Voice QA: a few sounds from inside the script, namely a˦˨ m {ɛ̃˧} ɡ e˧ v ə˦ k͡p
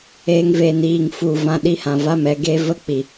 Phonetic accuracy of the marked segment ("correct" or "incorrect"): incorrect